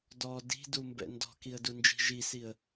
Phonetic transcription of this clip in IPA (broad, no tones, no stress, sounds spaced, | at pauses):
d ɔ d i̤ d u m b ɛ̰ n d ɔ̤ k i ə̯ d u n d͡ʒ i̤ ʒ i s i ə̯